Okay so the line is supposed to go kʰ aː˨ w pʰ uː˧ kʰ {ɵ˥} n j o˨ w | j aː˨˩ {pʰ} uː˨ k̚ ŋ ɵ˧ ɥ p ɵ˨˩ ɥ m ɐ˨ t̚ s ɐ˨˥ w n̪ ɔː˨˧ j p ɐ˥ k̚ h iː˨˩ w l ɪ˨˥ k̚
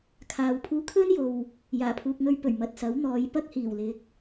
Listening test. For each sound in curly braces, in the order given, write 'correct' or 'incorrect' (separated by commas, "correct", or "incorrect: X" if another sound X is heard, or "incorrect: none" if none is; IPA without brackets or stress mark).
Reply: correct, correct